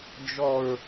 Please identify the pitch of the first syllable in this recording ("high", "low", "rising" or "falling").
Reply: low